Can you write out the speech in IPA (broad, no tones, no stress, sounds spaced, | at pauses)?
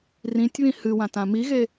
r ĩ tʲ β ĩ h ɨ w ã t ã m i ɣ e